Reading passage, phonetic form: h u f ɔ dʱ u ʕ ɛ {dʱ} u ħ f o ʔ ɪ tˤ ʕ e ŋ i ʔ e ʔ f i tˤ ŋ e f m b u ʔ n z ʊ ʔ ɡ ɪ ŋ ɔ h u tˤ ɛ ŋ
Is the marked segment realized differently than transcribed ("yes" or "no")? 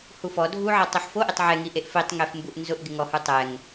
yes